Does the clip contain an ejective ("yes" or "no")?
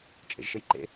yes